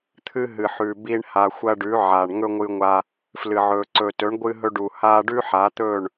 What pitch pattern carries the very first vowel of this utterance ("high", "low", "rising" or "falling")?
high